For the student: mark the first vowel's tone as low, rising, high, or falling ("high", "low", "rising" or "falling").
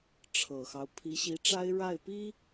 low